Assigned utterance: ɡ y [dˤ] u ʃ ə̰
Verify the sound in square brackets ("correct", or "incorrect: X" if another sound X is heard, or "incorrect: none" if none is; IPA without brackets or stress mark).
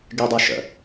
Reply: correct